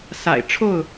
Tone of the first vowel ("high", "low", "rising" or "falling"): low